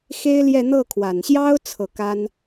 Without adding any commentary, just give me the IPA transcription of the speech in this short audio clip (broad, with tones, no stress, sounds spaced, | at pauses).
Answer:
x e˥ ɪ̯ l j ɛ˥˧ n̪ ɤ˥˩ kʰ w a˨˩ n ɕ j ɑ˥ ʊ̯ t͡sʰ ɤ˥˩ k a˥ n